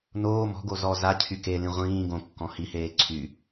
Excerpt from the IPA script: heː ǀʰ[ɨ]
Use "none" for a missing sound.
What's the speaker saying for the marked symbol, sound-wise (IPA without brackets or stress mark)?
y